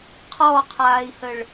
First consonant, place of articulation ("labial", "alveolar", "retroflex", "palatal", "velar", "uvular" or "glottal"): uvular